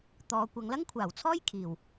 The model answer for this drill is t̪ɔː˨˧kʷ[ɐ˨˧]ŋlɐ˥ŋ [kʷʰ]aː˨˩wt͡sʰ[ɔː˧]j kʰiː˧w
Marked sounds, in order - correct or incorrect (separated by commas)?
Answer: correct, correct, incorrect